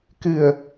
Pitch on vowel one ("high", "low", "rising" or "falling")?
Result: low